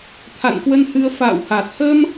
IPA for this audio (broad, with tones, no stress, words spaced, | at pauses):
t̪ʰa̰˧˨nkwə˧nhɨ˧ə̯ fa̰ː˧˨wha˨˩t̚ hə˧m